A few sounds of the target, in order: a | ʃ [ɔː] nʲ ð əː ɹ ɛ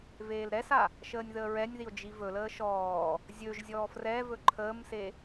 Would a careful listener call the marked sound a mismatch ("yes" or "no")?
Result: yes